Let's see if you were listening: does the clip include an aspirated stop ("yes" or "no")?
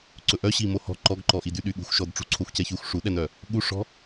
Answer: yes